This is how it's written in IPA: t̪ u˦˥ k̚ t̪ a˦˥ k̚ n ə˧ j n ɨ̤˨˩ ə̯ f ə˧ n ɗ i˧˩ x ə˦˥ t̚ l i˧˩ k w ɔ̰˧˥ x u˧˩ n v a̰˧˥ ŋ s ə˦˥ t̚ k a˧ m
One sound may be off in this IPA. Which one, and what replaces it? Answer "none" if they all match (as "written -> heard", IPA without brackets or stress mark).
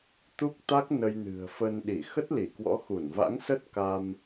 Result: none